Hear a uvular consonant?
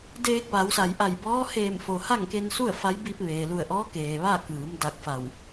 no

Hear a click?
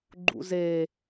yes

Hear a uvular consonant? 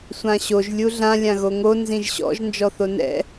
no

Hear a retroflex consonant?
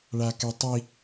yes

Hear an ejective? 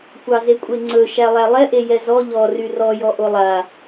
yes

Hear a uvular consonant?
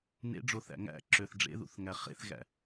yes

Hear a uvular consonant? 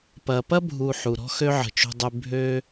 no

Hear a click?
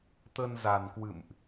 no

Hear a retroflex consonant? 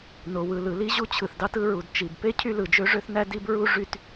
yes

